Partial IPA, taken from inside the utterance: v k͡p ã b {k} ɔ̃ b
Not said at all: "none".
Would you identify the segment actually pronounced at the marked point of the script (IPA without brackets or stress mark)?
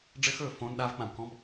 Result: k